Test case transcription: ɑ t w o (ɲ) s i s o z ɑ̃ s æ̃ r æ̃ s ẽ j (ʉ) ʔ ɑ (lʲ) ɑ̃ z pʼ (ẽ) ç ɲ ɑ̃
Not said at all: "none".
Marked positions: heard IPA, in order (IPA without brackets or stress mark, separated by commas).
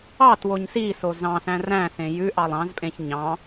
ɲ, ʉ, lˠ, ẽ